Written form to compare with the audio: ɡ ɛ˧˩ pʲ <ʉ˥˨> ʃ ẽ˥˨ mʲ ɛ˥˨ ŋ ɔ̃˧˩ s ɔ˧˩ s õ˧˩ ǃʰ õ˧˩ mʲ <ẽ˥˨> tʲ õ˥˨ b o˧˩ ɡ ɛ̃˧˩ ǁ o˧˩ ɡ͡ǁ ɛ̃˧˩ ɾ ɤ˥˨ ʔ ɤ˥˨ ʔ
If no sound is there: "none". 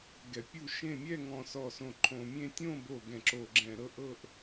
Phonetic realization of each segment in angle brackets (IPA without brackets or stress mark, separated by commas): u˥˨, ẽ˥˨